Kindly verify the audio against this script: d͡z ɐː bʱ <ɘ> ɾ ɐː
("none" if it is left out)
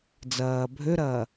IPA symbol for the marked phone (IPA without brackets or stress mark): ø